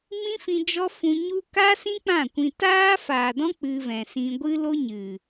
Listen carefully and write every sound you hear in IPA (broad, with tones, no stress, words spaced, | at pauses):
mĩ˦fĩ˧ d͡ʒɔ˦fũ˧ ɲu˦ ka˦sĩ˦ k͡pã˦˨kʷĩ˧ taː˦faː˨dɔ̃˦ k͡pɨ˧vɛ̃˨sĩ˧ ɡʷɨ˦lo˦ɲɨ˨